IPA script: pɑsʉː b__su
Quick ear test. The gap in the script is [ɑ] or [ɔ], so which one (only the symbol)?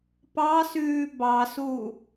ɑ